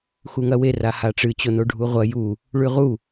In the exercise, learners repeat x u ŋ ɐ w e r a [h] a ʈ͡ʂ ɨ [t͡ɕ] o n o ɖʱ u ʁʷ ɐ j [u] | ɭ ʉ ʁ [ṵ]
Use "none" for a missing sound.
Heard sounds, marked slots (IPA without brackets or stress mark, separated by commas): h, t͡ɕ, u, u